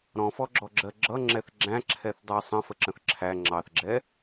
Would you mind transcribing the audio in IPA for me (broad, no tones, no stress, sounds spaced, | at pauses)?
ɾ ɔ̃ f ɔ ɡ͡ǁ ɔ ɡ͡ǁ ɜ ɡ͡ǁ ʌ ŋ͡ǁ ɛ θ ɡ͡ǁ æ̃ ǁʰ ɛ θ dˤ ɛ sˤ ə̃ f ə ǁ ə̃ θ ǁʰ æ ŋ͡ǁ ɑ θ ɡ͡ǁ ɛ